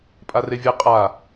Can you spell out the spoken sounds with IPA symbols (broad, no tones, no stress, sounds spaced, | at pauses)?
pʼ a r e vʲ e qʼ a